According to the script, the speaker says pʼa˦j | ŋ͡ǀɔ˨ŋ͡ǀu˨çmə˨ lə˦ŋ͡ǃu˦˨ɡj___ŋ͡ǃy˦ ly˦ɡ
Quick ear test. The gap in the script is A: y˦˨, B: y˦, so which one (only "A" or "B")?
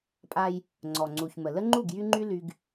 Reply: B